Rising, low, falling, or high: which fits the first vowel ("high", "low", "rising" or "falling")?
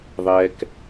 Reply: high